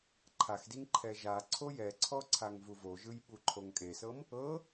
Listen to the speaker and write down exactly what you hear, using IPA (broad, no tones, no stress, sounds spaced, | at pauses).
ǃʰ a x d i ŋ ǃʰ ɛ ʒ a ǀʰ o j ɛ ǀʰ ɔ ǀʰ a ŋ v u v o ʒ ɯ j ɓ u ǃʰ o ŋ kʼ e s ɤ m | ɤ